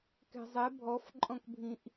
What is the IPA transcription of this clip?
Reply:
kɛ̤zˤɛ bʱɔfǃʼɔ̃kbʱĩʔ

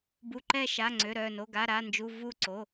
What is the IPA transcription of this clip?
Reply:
bu˩˧˩ǃɛ˧˩ʃa˩˧˩ ŋ͡ǀø˩˧˩ɾœ˧˩no˩˧˩ ɡa˩˧˩ɾa˩˧˩nd͡ʒu˩˧˩ vu˧˩ǀo˩˧˩

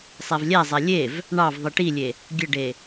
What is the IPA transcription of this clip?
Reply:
sˤævlʲæzˤæ lʲev | ɳɑv ðˤiʈilʲe | ɡʲəɖe

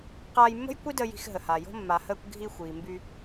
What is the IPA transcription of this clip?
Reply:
qaː˧jmːə̤˥jkʷi˥də˧ ji̤˧xɦə˩ha˩jo̤˥ mːa˩həː˧kʷ ɡʱi˧ xʷiː˩mby˧

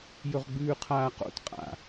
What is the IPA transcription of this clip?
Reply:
jɵʁɡ͡bʉːqʰaːqo̰t qʼa̰

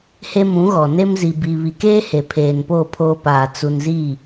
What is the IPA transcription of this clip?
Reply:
he˦mũ˨˦ɣɔ˨ ne˦mzi˨bi˨ βi˨keː˦ he˨pʰeː˨npoː˦˨ pʰoː˦paː˨ t͡su˨nzi˦˨

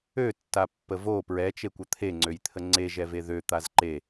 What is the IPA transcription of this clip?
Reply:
øtːapːə vo pɹɛt͡ʃekʷə t̪ʰeŋ͡ǀøjt̪ʰə ŋ͡ǀeʒɛve ðøt̪az ǃe

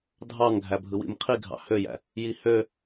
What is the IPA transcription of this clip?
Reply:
dʱɑŋ ɡʱæbʱɯwḭmqʰi ɡʱɑ̰højæ̰ | jihø

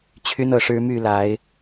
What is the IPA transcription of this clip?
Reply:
t͡ɕʰy˦nɤ˨˩ʂɻ̩˦ my˥˨la˨˦ɪ̯

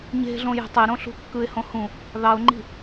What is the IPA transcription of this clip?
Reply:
ɲe̤ɮõ je̤tˤe ɾõɬṳkːɯɪ̯ hõhũ | ðɑʊ̯ŋ͡ǃi̤

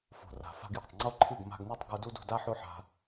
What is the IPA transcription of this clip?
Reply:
fo̤˨ra̤˨ fa̤˧ɡjɔ̤˨tˤŋ͡ǀo˦ ǃʰɨ˦˨ɡ ma̤˧ɡne˦tˤ ɡu˦ du˦dṳ˧da˦ ħo˦ħa̤˧

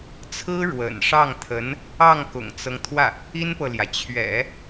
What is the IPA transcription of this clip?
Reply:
t͡sʰɹ̩˥ɻwə̰˨˩nʂɑ˥˩ŋt̪ʰə˧˥n | ɑ˥˩ŋ kʊ̰˨˩ŋt͡sɤ˦ŋt̪ʰwä˥˩ | i˥npɤ˨ljä˩ t͡ɕʰɥɛ̰˨˩˦

